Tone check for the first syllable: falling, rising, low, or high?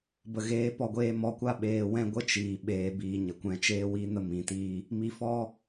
low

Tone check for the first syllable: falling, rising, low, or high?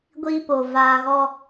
high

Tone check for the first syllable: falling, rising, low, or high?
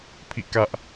falling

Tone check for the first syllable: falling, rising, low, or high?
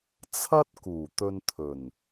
high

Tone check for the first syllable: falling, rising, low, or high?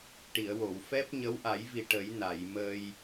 low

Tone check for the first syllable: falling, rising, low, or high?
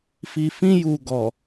low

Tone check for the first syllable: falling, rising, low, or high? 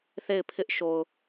falling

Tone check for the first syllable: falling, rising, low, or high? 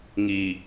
low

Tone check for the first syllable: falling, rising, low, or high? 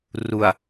low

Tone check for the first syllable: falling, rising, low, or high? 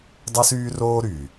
high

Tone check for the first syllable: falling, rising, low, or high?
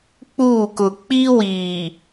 falling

